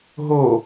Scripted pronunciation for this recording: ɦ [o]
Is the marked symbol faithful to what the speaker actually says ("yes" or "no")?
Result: yes